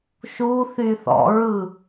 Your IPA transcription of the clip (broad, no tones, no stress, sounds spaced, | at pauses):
ʃ u θ y θ ɔ̰ ɹ ɯ